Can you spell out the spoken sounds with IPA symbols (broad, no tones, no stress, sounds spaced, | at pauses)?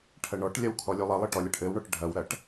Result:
ʈʰ ɐ ɳ ɔ ʈ lʲ ɐ w kʰ ɔ lʲ u lˠ ɘ lˠ ɘ ʈ ɔ lʲ ɐ ʈ ʔ ɘ w ɳ ɔ ʈ ɖʱ ɐ w ɾ ɐ ʈ